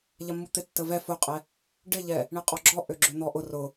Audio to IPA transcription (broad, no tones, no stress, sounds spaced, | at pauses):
ʎ ɐ mː u t̪ ɪ tː ə v ɛ f ʊ qʼ ɛ | ɖ ɪ ʎ ɛ | ɳ ɪ qʼ ɔ ɡ͡ǁ ɔ ʔ ø ɡ͡ǁ ø n̪ ɔ ʔ ʊ r ʊ